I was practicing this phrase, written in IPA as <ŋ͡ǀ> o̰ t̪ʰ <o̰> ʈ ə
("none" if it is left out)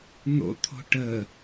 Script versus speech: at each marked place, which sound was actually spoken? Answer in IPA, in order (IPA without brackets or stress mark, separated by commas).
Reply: n̪, o̤